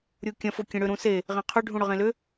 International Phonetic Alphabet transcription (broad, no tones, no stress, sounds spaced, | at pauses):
ɾʲ u kʲ ɐ̃ f o kʲ ẽ ɽ ʏ ɾ ũ s e | ʁ ẽ qʰ ʏ ɖʱ ũ ɽ ʏ ʁ ẽ l ʏ